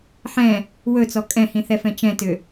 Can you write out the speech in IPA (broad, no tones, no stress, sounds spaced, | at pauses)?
ħ ɛ̃ | w ɵ t͡s ɔ kʼ ɛ̃ h ĩ θ ɛ f ɛ̃ t͡ʃ ɛ̃ t ʏ